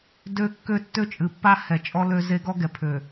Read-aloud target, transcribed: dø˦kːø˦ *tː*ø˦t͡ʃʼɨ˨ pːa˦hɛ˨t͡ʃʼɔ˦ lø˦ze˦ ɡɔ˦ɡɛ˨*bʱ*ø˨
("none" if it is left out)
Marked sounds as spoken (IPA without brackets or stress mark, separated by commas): tː, pʰ